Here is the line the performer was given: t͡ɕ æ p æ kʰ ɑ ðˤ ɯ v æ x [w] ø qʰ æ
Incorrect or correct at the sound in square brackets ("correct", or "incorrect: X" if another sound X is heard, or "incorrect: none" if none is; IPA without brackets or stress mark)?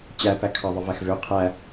incorrect: v